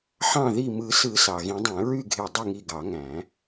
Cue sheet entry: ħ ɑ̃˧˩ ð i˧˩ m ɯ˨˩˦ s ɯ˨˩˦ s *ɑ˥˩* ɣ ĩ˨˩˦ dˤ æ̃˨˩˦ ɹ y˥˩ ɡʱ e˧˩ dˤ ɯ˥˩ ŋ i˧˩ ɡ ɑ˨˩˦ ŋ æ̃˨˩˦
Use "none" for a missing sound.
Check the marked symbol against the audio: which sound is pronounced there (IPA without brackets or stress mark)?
ɑ˩